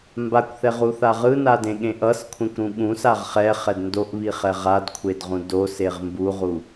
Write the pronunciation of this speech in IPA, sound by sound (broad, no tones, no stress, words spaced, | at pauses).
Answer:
mbakʷθɛʁuθa ʁɯnadẽɠẽ ʔʌskʷʰẽkʷɾũ ɠũsaʁ χɛχɛd ndoʔβiχɛ ʁadkʷʰedʁũ doseʁ mbuʁu